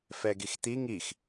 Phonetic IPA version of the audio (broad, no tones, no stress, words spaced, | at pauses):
fɛɡixt̪i ŋix